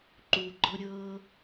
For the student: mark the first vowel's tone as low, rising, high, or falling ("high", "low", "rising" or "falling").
low